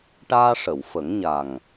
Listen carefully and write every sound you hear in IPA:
ʈ aː˧ ʂ ə˨˩˨ w f ə˨˩˦ ŋ ɲ a˨˩ ŋ

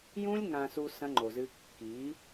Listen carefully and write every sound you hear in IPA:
j ũ˦ lʲ ŋ ã˨ s u˨ s ɐ̃˦ ŋ͡ǃ o˨ z ɨ˦ kː i˨˦

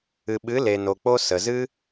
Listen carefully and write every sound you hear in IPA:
ɨ˨ ɓ ɨ˨˦ l e˨ n o˨ k͡p o˦ s ə˨ z ɨ˦

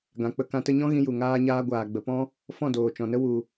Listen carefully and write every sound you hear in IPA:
ɡ ã˨ k͡p ə˧ k ã˧ t ə˦ ɲ ɔ̃˦ ɣ ĩ˦ j u˨ ŋ aː˦ ɲ aː˦ ɡʷ aː˨ ɡ͡b ə˨ p ɔ̃˦ | f ɔ̃˦˨ d oː˨ t͡ʃ ɔ̃˨ n ə˦ w u˨

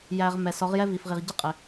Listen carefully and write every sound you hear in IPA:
j æ˧ ʁ m ɛ˨ s ɔ˨˦ ʁ j ɛ˦ v i˨ f ʁ i˨ ʁ ɟ ɪ˦ qʼ ɪ˨

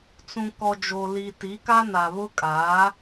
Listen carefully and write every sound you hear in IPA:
t͡s ũ˨ k ɔ˨ d͡ʒ o˨ l i˨ t i˨˦ k a˦ n a˨ β ʊ˦ kʼ aː˨˦

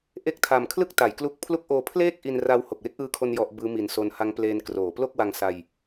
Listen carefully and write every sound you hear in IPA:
ʔ e˦˥ k̚ tʰ a˨˩ m kʰ l ɯ˥˩ k̚ t a˩˦ j k l u˦˥ k̚ pʰ l u˦˥ k̚ ʔ oː˧ pʰ l eː˥˩ k̚ ʔ i˧ n r a˧ w h o˨˩ k̚ w e˦˥ k̚ ʔ ɯː˧ kʰ o˧ n j ɔ˦˥ ʔ b ɯː˦˥ m i˨˩ n s o˧ n h a˦˥ ŋ p l eː˧ n k r oː˩˦ p l o˥˩ k̚ w a˧ ŋ s a˧ j

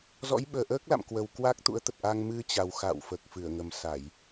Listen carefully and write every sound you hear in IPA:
z ɔ̰˧˥ j ɓ əː˨˩ ʔ əː˦˥ k̚ l a̰˧˨ m k w ə˨˩ w k w a˦˥ k̚ t̪ ṵ˧˥ ə̯ t̪ ə˨˩ t̚ ʔ a˧ ŋ m ɨ˧ t͡ɕ a˨˩ w x a̰˧˨ w f əː˨˩ k̚ f ɨ˧˩ ə̯ ŋ ə˨˩ m s a˧˩˨ j

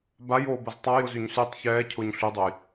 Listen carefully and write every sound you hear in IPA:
b a j oː b ɐ z tˤ a j ʊ z y ɲ s y tˤ ç ɛː cʰ ʊː ɲ ɬ y dˤ o j

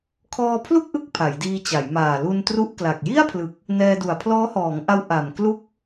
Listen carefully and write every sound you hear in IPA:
kʰ ɔː˧ pʰ l u˥˩ k̚ ʔ ɯ˦˥ k̚ pʰ a˩˦ j d iː˧ t͡ɕ a˩˦ j m aː˨˩ l u˧ n t r u˦˥ ʔ k l a˨˩ k̚ j i˥˩ a̯ pʰ l ɯ˨˩ k̚ | n ɛː˧ d u˨˩ a̯ pʰ l ɔː˦˥ h ɔː˩˦ ŋ ʔ a˦˥ w ʔ a˨˩ m k l u˦˥ k̚

